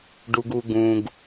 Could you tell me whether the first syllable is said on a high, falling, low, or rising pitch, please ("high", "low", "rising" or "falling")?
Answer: low